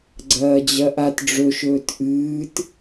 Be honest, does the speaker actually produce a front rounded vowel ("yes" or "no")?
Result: no